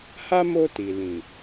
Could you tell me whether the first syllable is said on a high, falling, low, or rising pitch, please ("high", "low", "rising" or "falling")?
high